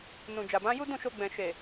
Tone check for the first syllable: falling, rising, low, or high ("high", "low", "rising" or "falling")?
low